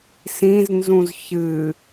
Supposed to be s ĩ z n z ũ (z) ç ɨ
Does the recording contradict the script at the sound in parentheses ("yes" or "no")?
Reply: no